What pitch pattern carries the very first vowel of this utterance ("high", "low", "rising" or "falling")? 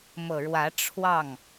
low